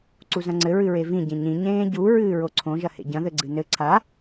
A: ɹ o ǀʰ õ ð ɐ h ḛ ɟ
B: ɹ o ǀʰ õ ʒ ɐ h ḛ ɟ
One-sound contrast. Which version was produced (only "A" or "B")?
B